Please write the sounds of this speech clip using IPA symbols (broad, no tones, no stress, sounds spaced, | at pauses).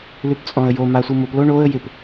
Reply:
l ʉ p t͡sʼ ɔ̃ ə̯ j o m a sʷ ɯ m o p l o ɳ o ə̯ j ɪ p